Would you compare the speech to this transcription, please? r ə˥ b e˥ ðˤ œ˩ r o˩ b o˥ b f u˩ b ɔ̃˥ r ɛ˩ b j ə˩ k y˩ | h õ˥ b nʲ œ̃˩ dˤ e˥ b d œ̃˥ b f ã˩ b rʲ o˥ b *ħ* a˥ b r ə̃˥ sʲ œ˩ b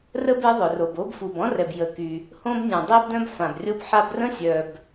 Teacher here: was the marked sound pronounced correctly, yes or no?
yes